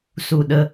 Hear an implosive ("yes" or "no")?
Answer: yes